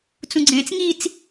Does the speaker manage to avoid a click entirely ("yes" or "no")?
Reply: no